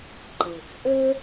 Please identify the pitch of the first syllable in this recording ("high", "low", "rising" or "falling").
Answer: low